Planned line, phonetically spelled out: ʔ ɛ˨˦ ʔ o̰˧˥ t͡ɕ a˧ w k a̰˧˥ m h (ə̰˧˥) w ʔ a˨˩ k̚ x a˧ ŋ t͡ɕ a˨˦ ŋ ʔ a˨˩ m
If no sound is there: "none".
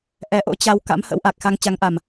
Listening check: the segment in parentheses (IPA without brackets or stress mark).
ə̰˧˥